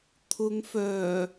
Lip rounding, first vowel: rounded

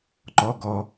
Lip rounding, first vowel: rounded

